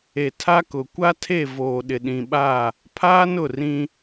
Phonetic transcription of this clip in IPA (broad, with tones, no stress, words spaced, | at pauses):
e˨tʰa˦kʊ˨ kʷa˦tʰe˦˨voː˨ ɗɪ˨ɗĩ˨ɓa˦˨ | pʰaː˦nʊ˦˨rĩ˦